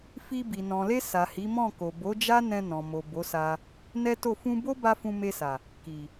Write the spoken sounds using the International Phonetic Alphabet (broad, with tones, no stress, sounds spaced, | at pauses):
f i˧ b i˨ n ɔ̃˨ l e˧ s a˨ h i˨˦ m ɔ̃˦˨ k o˨ b o˨˦ d͡ʒ a˦ n ɛ̃˧ n ɔ̃˨ m o˨ b o˨˦ s a˧ | n ɛ˦ t o˦˨ f ũ˧ b o˦ b a˧ f ũ˧ m e˧ s a˨ | k i˨